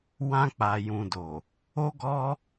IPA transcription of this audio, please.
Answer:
w ã˧ k͡p a˨ j ũ˨ d o˨ | o˦ ɡ ɔ˦

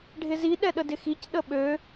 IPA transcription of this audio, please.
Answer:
ɖʱ ɪ z i ɗ ɛ ɗ ə d ɪ x i c ɗ ə ɓ ø

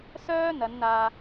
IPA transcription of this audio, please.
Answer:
s œː˥ n̪ ɐ˨˧ n n̪ aː˧

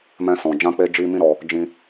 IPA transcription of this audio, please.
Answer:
m ɛ̃˧ s ɔ̃˨ d͡ʒ ã˧ k͡p e˧ d͡ʒ i˧ m ĩ˦ ɾ ɔ˧ | d͡ʒ ĩ˧

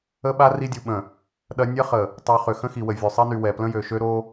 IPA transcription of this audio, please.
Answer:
ə˦ ɓ a˦ r i˦ dʲ u˨ ɓ ə̃˨ | ɗ ɐ˦ nʲ ɐ˦ χ ə˨ | tˤ u˨ χ ʏ˨ x ə̃˦ x i˨ w ə˨ vʲ ø˨ sˤ e˦ n y˨ w ɛ˨ p l ə̃˦ j ø˨ ʃ ø˦ ɾ o˦

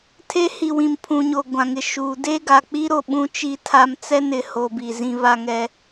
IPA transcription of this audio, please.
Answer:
tʰ e˦ h i˨ w ĩ˨ m pʰ ũ˨ ɲ o˨ ɡʷ ã˨ ŋ ɪ˨ ʃ uː˨ d e˦ ɡ a˨ k͡p i˦ ɾ o˨ ɓ ũ˦ t͡ʃ i˦ tʰ a˦ m t͡s ɛ˦ n ɪ˨ h o˨ b i˨ z ĩ˦ β a˦ ŋ ɛ˦

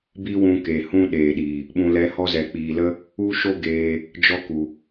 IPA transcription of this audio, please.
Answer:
b i˦ w ũ˧ k e˨ h ũ˦ ɗ eː˨ ɗ i˨ | ɓ ũ˧ l ɛ˧ h ɔ˦ z ɛ˨ k͡p iː˨ l ə˦ | u˦ ʃ o˦ ɡ eː˧ | d͡ʒ ɔ˦ k u˨

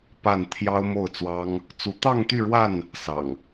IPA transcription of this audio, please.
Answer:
p a˥˨ n t̪ʰ j ɑ˦ ʊ̯ m o˥˨ ʊ̯ t͡s w ɑ˦ ŋ | t͡s u˨˦ t̪ ɑ˥˨ ŋ t̪ y˥˨ ɻ w a˥˨ n | s ɑ̰˨˩ ŋ

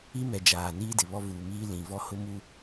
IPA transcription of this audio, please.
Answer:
i˦ m ɛ˨ d͡ʒ aː˨ n iː˦ d ɪ˨ β ɔ˦ v uː˨ m iː˦ l ĩ˨ v ɔ˦ h ʊ˦ m u˦

